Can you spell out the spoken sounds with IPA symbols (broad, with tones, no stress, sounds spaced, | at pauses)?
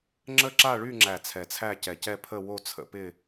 ŋ͡ǁ ə˥˧ ǁ a˥˧ ɭ y˥˧ ŋ͡ǁ æ˨˩ t͡sʰ ɛ˨˩ t͡sʰ æ˥˧ c ɛ˨˩ c ɛ˥˧ pʰ ə˥˧ w o˥˧ t͡sʰ ə̰˨˦ p ɪ˥˧